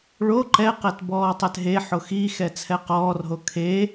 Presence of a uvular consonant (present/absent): present